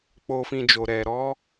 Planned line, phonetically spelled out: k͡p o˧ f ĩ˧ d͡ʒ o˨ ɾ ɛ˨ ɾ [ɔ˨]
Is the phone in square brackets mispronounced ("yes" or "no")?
yes